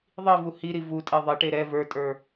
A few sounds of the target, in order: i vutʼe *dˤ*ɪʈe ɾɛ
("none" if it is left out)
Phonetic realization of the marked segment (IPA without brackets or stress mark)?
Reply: ðˤ